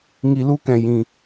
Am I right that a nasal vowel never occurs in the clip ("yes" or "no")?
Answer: no